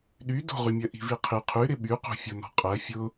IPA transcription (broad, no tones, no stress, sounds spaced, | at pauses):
ɗ y d o̤ ʁ y mʲ ɜ ʔ i̤ v i qʰ i qʰ y ɾ ɪ ɓ y q o̤ fʲ ʊ n ɔ̤ qʼ ɜ fʲ ʊ